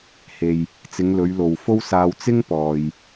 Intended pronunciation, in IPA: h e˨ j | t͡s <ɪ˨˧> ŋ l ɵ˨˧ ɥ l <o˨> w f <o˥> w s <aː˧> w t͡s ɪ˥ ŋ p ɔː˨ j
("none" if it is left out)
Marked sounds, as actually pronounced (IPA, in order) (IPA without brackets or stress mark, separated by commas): ɪ˨˧, o˨, o˥, aː˧